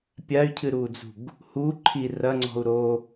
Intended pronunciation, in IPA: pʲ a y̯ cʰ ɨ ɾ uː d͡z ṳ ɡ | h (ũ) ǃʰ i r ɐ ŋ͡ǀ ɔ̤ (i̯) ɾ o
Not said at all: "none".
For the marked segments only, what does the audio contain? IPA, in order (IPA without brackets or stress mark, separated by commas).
u, u̯